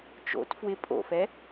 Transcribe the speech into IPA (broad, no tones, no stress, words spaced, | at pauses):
t͡ʃo̰t fwɪ pʼo̰fɛ